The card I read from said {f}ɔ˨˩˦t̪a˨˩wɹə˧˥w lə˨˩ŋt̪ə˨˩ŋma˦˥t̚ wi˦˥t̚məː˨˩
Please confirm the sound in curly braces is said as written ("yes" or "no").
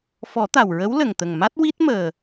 yes